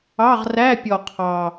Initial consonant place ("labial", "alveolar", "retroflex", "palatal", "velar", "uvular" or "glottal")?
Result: uvular